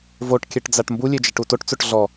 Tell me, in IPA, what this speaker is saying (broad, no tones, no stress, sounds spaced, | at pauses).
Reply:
v o ʈ kʲ ɛ ʈ d͡z a ʈ m b u lʲ e d͡ʒ ɛ ʈ u t o ʈ t͡s o ʈ ɮ ɔ